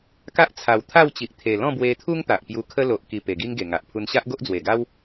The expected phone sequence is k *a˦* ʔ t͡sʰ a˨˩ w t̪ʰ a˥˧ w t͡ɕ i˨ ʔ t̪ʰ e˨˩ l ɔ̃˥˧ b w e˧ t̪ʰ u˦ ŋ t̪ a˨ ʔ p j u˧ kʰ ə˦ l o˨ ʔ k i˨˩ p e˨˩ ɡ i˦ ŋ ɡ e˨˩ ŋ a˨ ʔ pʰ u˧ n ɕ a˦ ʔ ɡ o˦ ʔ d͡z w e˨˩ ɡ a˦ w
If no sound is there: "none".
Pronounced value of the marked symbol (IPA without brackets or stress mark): a˦